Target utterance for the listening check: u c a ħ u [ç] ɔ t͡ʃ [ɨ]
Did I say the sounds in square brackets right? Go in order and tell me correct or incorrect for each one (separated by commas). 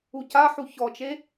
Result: correct, incorrect